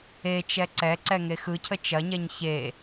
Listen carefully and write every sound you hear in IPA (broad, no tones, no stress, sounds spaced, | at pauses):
e t͡ʃ ɛ ǀ ɛ ǀ ɛ ŋ e x ɯ cʰ ə t͡ʃ ɐ ɲ ɛ ɲ ç e